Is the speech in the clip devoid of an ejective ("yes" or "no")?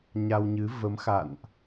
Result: yes